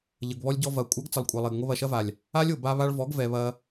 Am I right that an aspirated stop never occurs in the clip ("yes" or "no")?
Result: yes